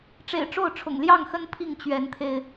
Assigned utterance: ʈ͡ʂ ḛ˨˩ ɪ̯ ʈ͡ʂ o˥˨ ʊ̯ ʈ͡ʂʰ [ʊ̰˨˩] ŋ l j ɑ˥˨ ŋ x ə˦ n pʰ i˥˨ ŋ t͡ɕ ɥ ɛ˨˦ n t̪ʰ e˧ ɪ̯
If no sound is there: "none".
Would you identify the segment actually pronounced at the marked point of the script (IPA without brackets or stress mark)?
ʊ̰˨˩